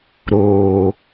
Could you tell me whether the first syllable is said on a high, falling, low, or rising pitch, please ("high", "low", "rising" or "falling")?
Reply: low